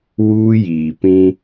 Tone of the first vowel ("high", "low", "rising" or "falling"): high